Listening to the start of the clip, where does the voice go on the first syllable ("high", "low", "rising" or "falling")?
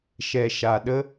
low